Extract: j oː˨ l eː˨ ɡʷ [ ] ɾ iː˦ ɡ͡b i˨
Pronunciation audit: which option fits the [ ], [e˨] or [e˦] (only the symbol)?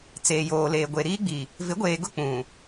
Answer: e˨